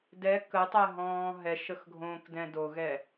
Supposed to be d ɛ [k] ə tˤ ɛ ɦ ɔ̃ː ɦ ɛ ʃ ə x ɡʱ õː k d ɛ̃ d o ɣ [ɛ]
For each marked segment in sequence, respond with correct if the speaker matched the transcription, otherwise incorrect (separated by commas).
correct, correct